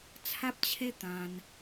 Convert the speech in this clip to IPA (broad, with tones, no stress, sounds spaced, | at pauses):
t͡sʰ a˦ p̚ t͡ɕʰ e˦ t̪ ã˧ n